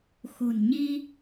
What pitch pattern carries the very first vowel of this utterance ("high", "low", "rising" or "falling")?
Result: low